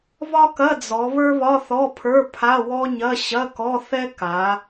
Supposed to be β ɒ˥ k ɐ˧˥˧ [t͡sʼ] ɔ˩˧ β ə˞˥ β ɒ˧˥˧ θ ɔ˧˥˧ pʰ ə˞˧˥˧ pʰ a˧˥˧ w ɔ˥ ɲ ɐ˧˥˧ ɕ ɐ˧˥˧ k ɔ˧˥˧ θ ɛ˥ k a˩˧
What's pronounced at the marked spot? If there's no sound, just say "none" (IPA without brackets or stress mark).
d͡z